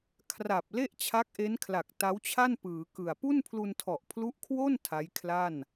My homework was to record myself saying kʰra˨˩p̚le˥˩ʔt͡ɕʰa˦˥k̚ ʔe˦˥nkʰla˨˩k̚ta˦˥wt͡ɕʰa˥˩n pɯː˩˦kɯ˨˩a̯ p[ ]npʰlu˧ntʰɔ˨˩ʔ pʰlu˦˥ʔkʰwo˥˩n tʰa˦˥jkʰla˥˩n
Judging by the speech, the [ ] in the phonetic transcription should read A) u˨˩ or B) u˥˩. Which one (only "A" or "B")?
B